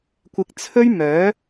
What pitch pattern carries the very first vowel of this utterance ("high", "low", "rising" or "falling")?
low